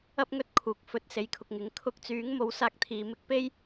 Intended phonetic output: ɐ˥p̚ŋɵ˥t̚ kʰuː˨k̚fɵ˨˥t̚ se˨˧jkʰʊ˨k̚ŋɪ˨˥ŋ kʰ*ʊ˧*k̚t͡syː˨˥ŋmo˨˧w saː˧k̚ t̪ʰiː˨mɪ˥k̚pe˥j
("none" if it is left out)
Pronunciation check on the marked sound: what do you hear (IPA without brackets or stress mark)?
ʊ˧